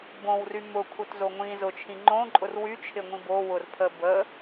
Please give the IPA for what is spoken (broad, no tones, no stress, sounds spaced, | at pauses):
b õ w r y m ʊ kʷʰ œ t z o ŋʷ ĩ z ʊ t͡ʃʰ ĩ ŋ͡ǃ õ ǃʼ ʊ r w y t͡ʃʰ ɪ ŋʷ ĩ b o w ʊ r pʰ ə b ə